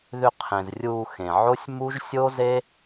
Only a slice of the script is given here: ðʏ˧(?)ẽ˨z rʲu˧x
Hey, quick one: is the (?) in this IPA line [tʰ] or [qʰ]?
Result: qʰ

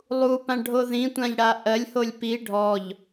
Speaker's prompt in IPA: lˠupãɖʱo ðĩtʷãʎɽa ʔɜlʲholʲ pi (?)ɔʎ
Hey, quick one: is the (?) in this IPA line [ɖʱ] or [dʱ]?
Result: ɖʱ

